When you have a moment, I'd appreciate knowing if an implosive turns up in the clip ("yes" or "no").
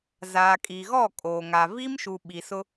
yes